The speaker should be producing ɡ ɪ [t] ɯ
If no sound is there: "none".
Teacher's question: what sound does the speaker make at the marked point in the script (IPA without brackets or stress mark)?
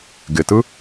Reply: t